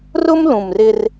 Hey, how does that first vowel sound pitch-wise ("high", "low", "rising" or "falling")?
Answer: high